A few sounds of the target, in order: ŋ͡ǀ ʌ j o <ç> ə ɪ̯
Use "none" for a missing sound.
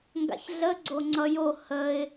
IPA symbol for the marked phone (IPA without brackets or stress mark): h